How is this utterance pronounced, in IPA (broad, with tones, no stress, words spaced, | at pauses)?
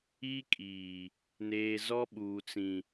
i˦kʼiː˨ | neː˨ zɔ˦ɓuː˨t͡sĩ˨